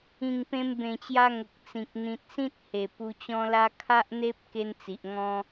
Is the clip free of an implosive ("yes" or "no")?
yes